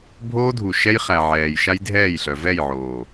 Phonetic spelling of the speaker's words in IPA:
bʱ oː˦ dʱ u˨ ʃ ɛ˦ j χ æ˨ ʕ ɛː˨ j ʃ a˦ j dʱ ɛː˦˨ j ɬ œ˨ v ɛ˦˨ j ʕ oː˨

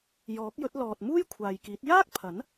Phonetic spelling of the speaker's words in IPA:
j ɔː˨˥ k̚ j ɵ˨˥ t̚ l ɔː˨ t̚ m uː˥ j kʷʰ aː˨ j k iː˨˥ t̚ j aː˥ k̚ pʰ ɐ˨˥ n

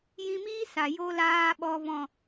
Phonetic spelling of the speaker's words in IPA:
j ĩ˧ m iː˦ s a˨ j o˧ l aː˧ ɓ ɔ˧ v ɔ̃˦˨

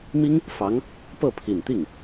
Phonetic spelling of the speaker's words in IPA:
m i˥ ŋ | f ɑ˧˥ ŋ | p ɤ˥˩ pʰ i˨˩ n t̪ i˥˩ ŋ

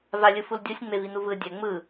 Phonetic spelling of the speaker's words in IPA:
v a lʲ ɯ f u l dʲ o sʲ ŋ͡m e v i n u v ɯ dʲ ɛ ŋ͡m ɯ

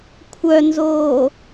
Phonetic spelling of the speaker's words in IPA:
kʷʰ œ n z oː

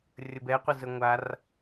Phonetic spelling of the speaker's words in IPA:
rʲ ə b ɛ qʷ ɪ z ə ŋʷ a r

